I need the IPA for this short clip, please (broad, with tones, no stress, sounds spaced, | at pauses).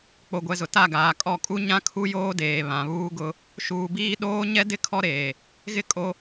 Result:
k͡p o˨ ɡʷ ɛ˨ z ʊ˨ t a˦˨ ɡ aː˨ kʼ ɔ˦˨ kʼ u˦ ɲ ã˦ kʰ u˦ j oː˦ d eː˨ β ã˨ β uː˦ ɡ ʊ˦ | ʃ uː˨ b iː˦ ɗ oː˦ ɲ ɛ˦ d ɪ˦ kʰ ɔ˦ ɾ eː˨ | ɣ ɪ˦ kʼ o˦